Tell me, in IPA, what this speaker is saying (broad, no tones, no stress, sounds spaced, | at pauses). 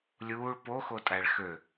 lʲ uː ɭ p o x o tʼ æ ɭ x ø